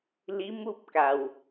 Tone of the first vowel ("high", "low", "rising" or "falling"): rising